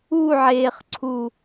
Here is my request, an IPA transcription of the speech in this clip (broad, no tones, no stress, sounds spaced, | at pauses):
u ʕ eː χ ǀʰ u